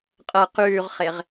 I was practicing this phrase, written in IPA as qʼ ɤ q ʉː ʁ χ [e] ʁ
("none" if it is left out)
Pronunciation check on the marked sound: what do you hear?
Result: e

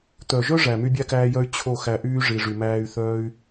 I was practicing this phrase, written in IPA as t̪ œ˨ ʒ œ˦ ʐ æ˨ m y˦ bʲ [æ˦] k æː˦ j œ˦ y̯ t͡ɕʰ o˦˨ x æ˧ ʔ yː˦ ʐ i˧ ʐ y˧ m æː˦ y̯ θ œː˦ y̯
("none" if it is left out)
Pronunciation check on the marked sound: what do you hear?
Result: æ˦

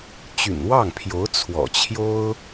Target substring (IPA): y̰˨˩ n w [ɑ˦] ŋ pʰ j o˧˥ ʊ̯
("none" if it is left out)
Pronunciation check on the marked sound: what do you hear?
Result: ɑ˥˩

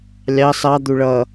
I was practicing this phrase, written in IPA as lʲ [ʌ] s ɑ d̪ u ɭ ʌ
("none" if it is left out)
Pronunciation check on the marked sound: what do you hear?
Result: ɑ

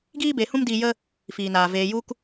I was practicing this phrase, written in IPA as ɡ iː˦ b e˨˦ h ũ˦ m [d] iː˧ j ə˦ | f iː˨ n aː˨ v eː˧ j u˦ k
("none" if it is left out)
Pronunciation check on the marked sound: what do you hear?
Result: d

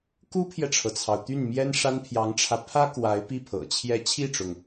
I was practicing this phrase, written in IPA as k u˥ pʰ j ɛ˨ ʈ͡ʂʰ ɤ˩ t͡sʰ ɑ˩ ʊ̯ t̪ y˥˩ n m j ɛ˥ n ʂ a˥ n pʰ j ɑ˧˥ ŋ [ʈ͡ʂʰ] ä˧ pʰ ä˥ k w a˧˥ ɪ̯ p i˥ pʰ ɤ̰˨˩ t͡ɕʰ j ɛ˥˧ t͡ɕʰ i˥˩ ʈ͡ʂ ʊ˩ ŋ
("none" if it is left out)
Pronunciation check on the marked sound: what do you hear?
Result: ʈ͡ʂʰ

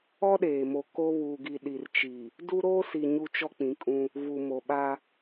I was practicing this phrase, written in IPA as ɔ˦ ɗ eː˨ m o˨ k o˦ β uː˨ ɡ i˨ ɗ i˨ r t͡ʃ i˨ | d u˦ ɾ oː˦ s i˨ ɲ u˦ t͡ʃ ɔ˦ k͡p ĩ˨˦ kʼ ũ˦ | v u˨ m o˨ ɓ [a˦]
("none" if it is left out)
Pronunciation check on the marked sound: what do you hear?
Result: a˦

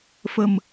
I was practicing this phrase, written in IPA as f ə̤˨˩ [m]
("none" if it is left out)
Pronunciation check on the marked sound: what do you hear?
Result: m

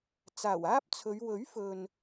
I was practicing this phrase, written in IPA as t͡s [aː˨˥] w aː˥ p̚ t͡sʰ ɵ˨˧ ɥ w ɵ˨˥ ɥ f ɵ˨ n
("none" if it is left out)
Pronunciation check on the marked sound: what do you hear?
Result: aː˨˩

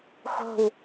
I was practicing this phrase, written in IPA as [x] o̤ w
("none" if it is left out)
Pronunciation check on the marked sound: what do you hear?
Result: x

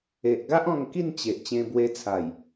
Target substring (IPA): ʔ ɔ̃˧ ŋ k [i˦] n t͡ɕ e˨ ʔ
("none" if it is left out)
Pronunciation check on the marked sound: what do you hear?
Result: i˥˧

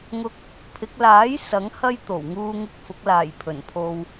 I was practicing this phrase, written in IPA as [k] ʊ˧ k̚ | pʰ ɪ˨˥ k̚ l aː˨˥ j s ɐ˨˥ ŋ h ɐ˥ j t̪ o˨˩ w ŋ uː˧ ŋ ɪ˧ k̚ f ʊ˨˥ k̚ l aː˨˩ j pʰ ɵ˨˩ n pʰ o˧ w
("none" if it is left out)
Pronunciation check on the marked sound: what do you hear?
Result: ŋ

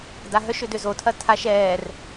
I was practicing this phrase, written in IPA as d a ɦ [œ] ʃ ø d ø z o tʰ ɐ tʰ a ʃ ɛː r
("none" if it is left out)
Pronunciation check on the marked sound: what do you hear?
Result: œ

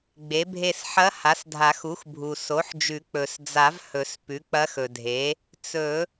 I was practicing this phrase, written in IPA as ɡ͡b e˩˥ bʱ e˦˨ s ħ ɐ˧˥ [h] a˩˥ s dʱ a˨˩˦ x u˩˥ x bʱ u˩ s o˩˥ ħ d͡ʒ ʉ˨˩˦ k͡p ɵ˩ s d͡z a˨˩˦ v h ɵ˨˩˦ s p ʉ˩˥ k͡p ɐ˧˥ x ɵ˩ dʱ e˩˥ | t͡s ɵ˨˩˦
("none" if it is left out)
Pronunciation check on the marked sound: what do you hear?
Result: h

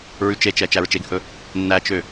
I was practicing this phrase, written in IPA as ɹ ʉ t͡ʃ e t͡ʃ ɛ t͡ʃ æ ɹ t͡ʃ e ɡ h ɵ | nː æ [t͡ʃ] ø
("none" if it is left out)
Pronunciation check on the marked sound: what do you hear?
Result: t͡ʃ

